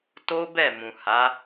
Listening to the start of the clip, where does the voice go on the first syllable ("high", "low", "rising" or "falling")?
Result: high